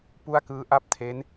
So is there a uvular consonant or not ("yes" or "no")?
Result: no